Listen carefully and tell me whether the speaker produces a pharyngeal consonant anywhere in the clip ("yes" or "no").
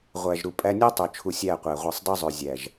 no